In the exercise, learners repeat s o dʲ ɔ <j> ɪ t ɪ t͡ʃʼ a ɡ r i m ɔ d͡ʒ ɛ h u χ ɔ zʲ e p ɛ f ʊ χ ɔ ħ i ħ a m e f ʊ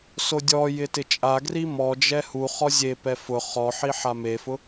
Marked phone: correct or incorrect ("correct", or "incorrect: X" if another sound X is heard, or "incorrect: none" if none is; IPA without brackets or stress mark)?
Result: correct